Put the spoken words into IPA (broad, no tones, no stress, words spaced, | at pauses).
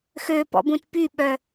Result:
xøpɔ̰bũt pyɓœ